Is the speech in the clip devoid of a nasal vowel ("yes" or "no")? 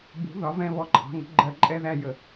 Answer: no